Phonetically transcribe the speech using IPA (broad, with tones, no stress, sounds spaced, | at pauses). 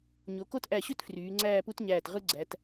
ɲ o˩˧ k o˥˧ t ʔ æ˧˩ ɕ ø˥ t f r yː˩˧ ŋ͡ǀ æː˥˧ p u˥ t ɲ æː˧˩ t ʁ ɯ˥ ɡ͡ǀ æ˩˧ t